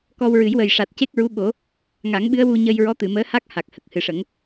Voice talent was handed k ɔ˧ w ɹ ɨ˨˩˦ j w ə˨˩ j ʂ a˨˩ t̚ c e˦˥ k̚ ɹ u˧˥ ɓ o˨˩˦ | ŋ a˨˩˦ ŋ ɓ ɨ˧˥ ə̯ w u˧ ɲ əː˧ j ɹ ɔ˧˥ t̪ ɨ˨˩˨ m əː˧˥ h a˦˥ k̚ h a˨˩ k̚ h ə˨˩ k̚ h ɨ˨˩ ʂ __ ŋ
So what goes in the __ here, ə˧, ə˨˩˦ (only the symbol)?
ə˨˩˦